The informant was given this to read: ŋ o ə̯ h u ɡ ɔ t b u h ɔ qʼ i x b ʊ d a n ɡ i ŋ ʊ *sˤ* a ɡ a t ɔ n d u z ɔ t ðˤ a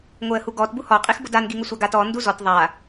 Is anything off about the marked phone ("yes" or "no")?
yes